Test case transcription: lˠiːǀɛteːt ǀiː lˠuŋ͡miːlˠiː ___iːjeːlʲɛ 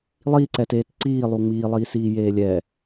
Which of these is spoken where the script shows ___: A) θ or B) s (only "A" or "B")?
B